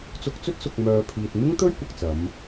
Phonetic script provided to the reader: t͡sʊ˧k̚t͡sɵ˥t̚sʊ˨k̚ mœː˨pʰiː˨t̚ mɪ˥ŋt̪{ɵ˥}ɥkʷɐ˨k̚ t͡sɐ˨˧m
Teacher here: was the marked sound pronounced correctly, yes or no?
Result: yes